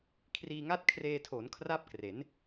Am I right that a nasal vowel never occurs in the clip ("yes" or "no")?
yes